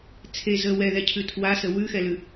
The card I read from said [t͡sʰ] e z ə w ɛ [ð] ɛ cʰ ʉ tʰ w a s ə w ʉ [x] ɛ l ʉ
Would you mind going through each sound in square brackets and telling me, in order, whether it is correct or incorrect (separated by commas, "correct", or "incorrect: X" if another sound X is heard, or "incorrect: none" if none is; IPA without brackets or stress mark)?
correct, correct, correct